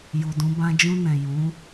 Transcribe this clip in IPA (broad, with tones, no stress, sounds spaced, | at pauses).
j u˨ d ũ˨˦ b ã˧ d͡ʒ ũ˧ n ɛ̃˨ j ũ˨˦